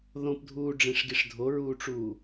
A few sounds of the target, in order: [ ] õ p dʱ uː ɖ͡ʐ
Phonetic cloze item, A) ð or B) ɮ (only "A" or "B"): A